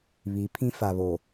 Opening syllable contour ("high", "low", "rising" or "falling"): rising